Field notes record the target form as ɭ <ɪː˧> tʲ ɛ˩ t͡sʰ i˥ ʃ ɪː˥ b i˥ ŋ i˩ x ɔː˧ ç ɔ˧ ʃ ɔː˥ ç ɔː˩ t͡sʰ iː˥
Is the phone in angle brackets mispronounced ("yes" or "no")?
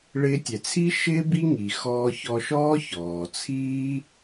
no